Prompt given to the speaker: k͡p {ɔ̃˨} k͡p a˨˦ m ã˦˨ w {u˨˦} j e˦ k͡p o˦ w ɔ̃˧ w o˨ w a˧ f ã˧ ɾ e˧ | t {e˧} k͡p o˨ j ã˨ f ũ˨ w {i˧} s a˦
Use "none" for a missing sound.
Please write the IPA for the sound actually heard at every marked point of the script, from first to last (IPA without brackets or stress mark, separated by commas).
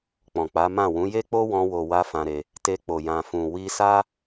ɔ̃˨, ũ˨˦, e˧, i˧